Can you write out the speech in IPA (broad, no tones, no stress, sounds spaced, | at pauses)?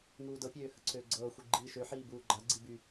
ŋ uː d ɤ pʲ øː h ə ǀʰ øː ɡ͡ǀ ɤː xʷ i ɡ͡ǃ iː ʃ ø ħ iː b uː ɡ͡ǃ a ɡ͡ǀ i b y